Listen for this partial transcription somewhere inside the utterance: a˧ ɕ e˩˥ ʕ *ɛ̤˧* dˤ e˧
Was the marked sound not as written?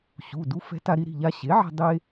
no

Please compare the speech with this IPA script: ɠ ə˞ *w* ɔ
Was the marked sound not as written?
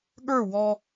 no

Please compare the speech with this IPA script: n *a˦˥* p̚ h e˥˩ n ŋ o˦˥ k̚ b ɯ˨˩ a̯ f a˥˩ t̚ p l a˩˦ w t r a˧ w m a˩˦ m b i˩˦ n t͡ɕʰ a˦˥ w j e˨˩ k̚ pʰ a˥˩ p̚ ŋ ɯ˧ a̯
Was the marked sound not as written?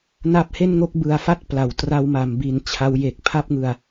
no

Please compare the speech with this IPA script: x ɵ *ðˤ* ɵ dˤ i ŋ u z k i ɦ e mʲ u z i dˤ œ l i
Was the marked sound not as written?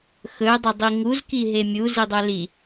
yes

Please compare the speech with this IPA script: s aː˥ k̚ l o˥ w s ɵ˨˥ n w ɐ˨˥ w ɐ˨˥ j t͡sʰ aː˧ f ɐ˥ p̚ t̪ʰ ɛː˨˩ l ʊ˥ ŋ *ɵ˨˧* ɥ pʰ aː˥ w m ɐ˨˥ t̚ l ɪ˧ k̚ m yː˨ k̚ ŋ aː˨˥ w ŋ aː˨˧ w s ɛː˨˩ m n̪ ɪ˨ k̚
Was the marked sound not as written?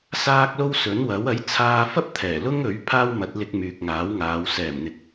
yes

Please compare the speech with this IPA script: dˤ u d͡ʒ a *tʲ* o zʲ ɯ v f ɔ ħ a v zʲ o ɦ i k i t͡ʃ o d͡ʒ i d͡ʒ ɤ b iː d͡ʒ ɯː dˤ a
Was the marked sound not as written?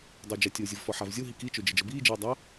no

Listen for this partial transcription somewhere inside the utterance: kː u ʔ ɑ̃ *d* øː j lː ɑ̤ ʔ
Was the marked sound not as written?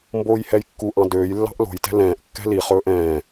no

